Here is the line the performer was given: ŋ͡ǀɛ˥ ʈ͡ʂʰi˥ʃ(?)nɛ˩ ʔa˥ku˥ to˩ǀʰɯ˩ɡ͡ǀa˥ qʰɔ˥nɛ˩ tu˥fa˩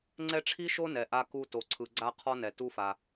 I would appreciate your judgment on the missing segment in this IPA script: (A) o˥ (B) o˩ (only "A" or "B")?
A